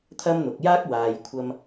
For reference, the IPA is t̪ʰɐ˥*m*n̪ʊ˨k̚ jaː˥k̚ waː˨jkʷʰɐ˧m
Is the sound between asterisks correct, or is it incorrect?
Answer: correct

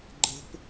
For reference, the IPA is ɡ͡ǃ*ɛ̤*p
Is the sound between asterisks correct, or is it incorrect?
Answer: incorrect: ə̤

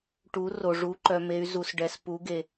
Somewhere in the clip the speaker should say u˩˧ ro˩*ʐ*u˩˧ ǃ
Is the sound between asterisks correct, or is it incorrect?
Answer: correct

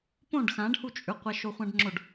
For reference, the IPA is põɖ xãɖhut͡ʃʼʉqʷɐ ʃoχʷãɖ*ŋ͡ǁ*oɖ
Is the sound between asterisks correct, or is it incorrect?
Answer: correct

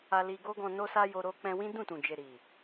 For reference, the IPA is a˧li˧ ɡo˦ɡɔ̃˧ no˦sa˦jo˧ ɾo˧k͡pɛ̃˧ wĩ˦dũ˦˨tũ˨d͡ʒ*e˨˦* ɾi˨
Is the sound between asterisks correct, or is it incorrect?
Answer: incorrect: e˨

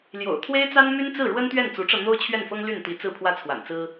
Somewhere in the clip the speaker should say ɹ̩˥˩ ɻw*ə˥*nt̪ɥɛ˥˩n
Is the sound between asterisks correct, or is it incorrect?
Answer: correct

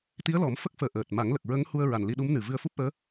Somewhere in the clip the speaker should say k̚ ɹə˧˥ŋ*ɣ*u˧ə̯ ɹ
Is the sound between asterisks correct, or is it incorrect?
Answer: incorrect: h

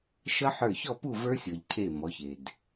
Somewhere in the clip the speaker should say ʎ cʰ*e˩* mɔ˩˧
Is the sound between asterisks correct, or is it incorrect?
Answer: incorrect: e˧˩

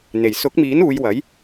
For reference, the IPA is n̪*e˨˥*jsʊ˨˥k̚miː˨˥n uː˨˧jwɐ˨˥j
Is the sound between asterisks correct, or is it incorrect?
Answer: incorrect: e˨˩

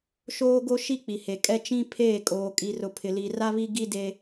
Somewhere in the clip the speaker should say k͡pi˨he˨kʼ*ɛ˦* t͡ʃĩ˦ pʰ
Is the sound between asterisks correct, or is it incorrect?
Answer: correct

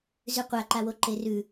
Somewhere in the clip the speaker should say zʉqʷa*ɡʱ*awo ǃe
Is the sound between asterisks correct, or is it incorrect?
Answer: incorrect: ǃ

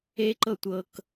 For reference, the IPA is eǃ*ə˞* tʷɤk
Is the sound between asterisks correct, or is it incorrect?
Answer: incorrect: ɤ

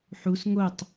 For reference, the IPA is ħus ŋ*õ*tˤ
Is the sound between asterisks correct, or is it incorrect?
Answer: incorrect: o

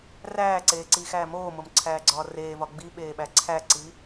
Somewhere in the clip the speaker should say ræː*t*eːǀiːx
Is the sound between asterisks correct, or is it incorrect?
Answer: incorrect: ǀ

